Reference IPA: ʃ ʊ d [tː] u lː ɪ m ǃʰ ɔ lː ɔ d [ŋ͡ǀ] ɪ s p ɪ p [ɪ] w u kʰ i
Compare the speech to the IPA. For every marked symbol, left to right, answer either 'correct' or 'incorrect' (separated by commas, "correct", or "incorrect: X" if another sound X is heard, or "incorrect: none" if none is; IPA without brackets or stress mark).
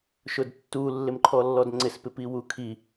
correct, correct, incorrect: i